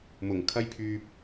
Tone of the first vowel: low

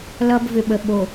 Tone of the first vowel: high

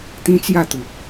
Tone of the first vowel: high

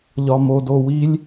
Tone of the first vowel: low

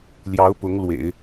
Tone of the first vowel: rising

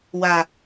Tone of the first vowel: high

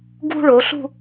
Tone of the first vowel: high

